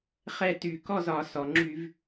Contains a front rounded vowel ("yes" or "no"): yes